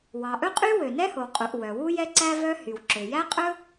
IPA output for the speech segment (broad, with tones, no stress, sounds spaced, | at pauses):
w ɑ˩ ʔ ɵ˥ qʼ y˥ w ø˩ n ɛ˥ h o˩ w qʼ u˩ ʔ w œ˩ w u˥ j ɛ˥ ǀ æ˥ v œ˥ h y˩ w ǁ ø˩ j æ˥ qʼ ɵ˥